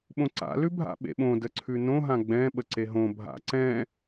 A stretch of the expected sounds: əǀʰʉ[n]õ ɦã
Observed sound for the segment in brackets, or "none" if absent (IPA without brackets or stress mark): n